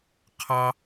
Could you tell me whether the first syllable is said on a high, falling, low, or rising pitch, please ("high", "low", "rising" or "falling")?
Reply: high